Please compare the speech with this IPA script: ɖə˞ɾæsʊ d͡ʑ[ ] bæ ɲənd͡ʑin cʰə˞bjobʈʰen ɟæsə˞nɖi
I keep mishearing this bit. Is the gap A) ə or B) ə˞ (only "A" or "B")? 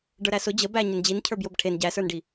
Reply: A